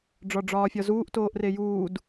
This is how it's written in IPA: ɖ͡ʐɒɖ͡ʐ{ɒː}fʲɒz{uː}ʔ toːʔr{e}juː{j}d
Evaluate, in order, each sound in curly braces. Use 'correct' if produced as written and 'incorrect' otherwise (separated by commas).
correct, correct, correct, incorrect